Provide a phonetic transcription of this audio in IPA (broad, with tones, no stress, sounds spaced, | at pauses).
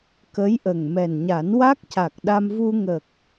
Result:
k ə˧˥ j ʔ ə˨˩ ŋ m ɛ˨˩ n ɲ a˨˩˦ n w a˦˥ k̚ c a˨˩ k̚ ɗ a˧ m v u˧ ŋ ə˨˩ k̚